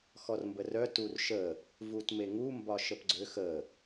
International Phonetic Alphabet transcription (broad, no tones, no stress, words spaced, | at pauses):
xɔrmbərœtur ʃə | vutmeŋumbɒ ʃəpɡ͡ǀøx ə